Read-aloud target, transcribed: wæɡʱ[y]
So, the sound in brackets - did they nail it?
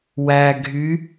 yes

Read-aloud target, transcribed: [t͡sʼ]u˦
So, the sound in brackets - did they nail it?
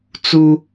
no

